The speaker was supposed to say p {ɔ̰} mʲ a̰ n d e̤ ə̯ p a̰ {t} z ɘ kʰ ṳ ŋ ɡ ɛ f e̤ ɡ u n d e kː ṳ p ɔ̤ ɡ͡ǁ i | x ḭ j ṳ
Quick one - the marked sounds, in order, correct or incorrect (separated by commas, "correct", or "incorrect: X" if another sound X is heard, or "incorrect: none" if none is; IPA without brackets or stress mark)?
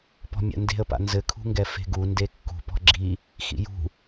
incorrect: ɔ̤, incorrect: n